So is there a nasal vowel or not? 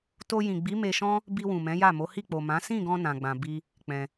yes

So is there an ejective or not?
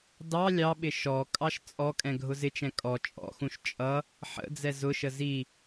yes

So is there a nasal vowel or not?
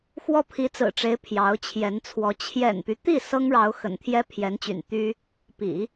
no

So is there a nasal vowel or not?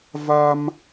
no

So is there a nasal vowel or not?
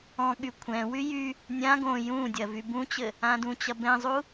yes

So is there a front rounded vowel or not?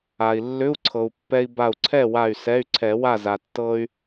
yes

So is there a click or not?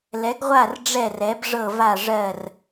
no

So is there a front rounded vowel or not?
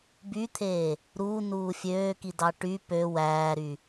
yes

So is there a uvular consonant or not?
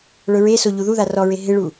no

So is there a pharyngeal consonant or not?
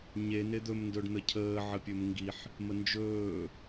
yes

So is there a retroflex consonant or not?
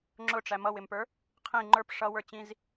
yes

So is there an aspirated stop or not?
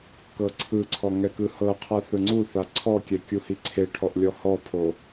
yes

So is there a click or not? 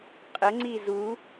yes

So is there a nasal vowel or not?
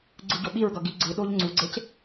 no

